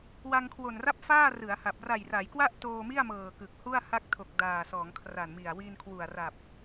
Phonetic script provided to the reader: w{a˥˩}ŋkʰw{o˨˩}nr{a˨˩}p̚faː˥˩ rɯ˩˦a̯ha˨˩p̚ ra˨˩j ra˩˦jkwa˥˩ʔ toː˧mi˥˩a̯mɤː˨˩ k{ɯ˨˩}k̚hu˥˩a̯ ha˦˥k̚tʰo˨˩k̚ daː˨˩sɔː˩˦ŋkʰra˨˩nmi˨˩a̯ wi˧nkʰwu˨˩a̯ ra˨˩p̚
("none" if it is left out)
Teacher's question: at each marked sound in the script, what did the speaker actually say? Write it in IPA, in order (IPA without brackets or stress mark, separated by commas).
a˧, o˨˩, a˥˩, ɯ˨˩